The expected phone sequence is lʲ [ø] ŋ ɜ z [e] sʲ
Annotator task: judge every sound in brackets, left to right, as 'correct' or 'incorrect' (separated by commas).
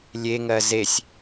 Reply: incorrect, correct